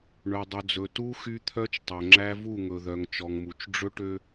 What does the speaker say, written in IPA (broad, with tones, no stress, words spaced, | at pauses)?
ɳɵ˨dˤɵ˨d͡zɵ˨ tu˦ xy˦t̪ʰœ˦t͡ʃtˤɵ˨ ŋ͡ǁæ˦vu˦˨ŋɵ˨ðœ˨ŋ t͡ʃɔ˨ŋmu˨t͡ʃ ɖ͡ʐɵ˦ʈø˦